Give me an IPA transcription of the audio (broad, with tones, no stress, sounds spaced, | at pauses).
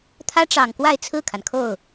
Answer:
t̪ʰ ä˥ ʈ͡ʂ ɑ˨˩ ŋ k w a˥˧ ɪ̯ t͡sʰ ɹ̩˥˩ kʰ a˩ n kʰ o˥˩ ʊ̯